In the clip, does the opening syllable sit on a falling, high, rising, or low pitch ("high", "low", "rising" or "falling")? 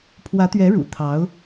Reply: rising